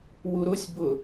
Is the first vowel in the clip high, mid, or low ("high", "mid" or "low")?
high